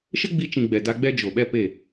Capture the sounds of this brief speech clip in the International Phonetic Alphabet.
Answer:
ʃ ə˦ ɡ͡b i˧ t͡ʃ ĩ˨ ɡ͡b ɛ˨ d a˧ ɡ͡b ɛ˦ d͡ʒ o˨ ɓ ɛ˦ p e˦˨

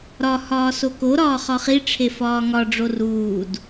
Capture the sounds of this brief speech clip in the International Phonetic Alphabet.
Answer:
ɾ ɒ h ɒː s o k o ɾ ɒː χ ɒ χ i ʈ͡ʂʰ e f ɒː ŋ ɒ ɖ͡ʐ o r uː d

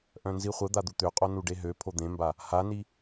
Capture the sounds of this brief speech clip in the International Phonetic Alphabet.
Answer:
ʔ œ̃ n z i χʷ ə d̪ a d̪ u t̪ ø qʼ o n u ɖ e ɦ ø pʰ o d̪ ẽ m b a | h a n i

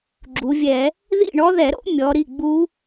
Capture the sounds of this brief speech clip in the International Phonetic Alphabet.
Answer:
ɡ͡ǁ u˩˧ vʲ ɛ˧˩˧ | ð ḭ˥˨ ɳ ɔ˦˥ ð ɛ˧˩˧ ɾ o̰˦˥ mʲ ɔ˩˧ ɾ i˩˧˩ ɡ͡b u˦˥

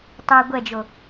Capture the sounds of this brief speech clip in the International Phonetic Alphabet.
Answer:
tˤ ɛ ɡʷ ɛ d͡ʒ o

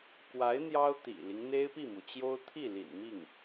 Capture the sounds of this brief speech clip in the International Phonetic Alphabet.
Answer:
k w a˧˥ ɪ̯ n̪ j ɑ˥ ʊ̯ t̪ ḭ˨˩ l i˦ ŋ n̪ e˥ ɪ̯ p i˥˩ m u˩ t͡ɕ j o˥ ʊ̯ t̪ʰ i˥˩ l ḭ˨˩ n m i˥˩ ŋ

